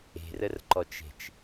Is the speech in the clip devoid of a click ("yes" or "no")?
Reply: no